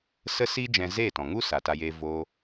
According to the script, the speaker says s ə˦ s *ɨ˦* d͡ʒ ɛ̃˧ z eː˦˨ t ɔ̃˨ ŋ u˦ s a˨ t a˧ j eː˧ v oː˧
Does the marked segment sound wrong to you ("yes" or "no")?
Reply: yes